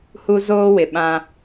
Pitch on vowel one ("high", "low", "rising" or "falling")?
high